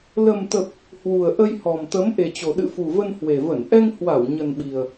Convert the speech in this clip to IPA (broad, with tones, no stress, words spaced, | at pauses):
lə˨˩mt̪ə˨˩p̚ | hwu˨˩ə̯ʔə˧jhɔ˨˩mt̪ə˨˦m ʔe˨˩t͡ɕo˨˩ ɗɨ̰˧˨fu˨˩və˧n hwe˨˩və˧˩n ʔɛ˧ŋ hwa˧˩w ɲə˨˩nɓi˨˩ə̯